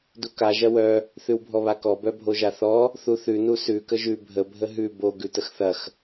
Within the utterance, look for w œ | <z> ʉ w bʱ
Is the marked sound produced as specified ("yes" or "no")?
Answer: no